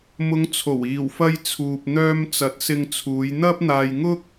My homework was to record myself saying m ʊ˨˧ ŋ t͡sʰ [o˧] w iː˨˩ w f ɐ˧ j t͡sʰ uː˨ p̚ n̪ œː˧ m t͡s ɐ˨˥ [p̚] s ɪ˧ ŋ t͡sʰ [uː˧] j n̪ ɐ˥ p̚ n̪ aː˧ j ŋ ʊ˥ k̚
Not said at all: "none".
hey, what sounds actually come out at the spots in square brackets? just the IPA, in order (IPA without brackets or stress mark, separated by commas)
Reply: o˨˩, t̚, uː˨˧